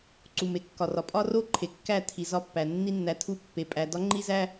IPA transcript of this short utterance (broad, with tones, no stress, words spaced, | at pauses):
ǀu˨me˨kːɒ˨rɒ˨ pʼɒ˦ro˦ ǃʰe˨kːæ˦˨tʰi˨ zɒ˦pːæ˨ nːi˧nːæ˨tʰu˧ pːe˨pʼæ˨ dɒ˦ŋ͡ǃi˦zæ˦